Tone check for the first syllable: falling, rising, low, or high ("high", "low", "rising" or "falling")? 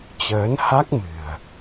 rising